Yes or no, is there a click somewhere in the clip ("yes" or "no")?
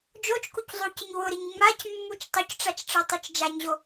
no